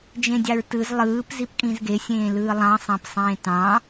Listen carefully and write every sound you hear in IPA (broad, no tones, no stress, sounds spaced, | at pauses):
d͡ʒ ẽ dʲ ɑ ɹ t ɯ z lˠ ɯː p z i p kʼ ĩ z ɡ e sʲ ẽː l ɯː lˠ ɑ̃ sˤ ɑ̃ p sˤ ẽː t ɑ̃